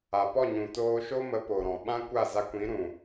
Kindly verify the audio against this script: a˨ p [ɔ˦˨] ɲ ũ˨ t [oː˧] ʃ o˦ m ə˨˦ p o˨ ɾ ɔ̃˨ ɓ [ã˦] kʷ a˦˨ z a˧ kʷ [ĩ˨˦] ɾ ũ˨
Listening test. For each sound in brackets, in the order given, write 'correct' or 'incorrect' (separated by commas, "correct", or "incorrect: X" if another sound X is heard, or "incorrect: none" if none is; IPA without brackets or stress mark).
correct, correct, correct, correct